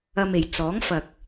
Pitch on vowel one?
low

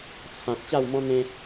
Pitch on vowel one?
low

